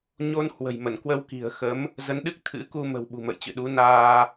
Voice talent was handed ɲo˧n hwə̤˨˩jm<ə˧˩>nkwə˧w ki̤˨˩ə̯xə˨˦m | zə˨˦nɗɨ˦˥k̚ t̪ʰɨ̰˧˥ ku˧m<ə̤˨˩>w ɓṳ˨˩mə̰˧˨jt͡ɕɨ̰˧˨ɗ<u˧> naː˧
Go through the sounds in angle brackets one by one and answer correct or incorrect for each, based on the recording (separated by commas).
correct, correct, incorrect